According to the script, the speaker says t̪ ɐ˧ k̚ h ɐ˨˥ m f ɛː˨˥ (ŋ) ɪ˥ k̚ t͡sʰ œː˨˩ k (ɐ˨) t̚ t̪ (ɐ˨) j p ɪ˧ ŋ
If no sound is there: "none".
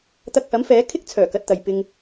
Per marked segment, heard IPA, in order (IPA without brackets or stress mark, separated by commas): kʰ, ɐ˨, ɐ˨